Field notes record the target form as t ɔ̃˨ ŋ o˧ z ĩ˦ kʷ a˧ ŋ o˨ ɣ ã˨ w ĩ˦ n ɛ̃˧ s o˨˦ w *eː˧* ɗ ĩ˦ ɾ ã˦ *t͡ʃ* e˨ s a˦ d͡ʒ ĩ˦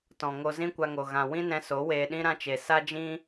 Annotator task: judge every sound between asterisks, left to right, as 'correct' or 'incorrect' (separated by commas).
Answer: correct, correct